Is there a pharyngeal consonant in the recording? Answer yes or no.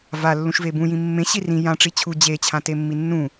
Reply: no